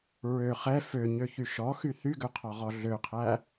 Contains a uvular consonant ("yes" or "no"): yes